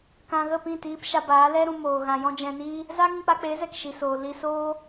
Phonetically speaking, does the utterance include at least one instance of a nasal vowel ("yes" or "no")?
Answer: yes